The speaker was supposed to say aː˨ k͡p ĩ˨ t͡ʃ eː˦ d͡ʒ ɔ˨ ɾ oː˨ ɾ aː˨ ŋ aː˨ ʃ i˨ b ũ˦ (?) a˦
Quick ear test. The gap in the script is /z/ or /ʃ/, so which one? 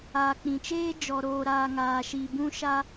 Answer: ʃ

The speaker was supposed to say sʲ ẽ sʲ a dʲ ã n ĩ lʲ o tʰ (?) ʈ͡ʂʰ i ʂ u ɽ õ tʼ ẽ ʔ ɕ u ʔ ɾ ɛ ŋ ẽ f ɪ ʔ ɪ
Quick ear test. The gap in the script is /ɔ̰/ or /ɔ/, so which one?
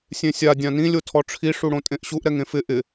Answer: ɔ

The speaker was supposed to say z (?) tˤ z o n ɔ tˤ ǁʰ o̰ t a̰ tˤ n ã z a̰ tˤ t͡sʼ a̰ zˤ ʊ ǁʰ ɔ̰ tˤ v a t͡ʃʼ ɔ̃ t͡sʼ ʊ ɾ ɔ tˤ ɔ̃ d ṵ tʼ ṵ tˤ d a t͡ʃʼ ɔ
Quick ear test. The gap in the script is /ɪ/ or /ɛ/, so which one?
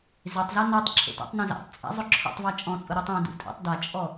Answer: ɪ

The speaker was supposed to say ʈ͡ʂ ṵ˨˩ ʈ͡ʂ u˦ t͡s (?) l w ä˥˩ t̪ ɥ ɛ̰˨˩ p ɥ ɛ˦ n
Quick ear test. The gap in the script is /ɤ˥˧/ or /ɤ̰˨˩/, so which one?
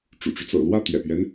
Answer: ɤ̰˨˩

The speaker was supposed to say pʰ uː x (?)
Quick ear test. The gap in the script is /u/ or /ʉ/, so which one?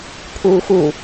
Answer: u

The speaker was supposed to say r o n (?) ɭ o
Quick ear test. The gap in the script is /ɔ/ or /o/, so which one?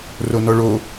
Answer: ɔ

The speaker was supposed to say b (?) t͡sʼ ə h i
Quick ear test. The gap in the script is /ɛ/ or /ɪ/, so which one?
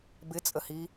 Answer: ɪ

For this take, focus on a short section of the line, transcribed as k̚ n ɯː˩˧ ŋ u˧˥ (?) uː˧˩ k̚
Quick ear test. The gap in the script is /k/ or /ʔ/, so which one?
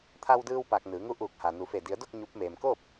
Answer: ʔ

